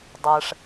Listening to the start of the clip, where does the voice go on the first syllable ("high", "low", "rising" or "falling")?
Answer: low